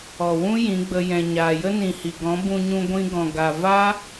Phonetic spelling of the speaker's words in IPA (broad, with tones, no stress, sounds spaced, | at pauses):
ɔ˨ w ũ˦ j ĩ˨˦ ɡ͡b ə˧ j ɛ̃˨ ɲ aː˨ j ə˦ n ĩ˨ h i˨ ɡ ɔ̃˨˦ b ũ˧ ɲ ũ˧ ɡʷ ĩ˧ ɡ ɔ̃˨ ɡ a˨ v a˦